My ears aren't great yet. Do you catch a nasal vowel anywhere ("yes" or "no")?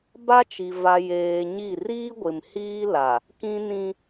yes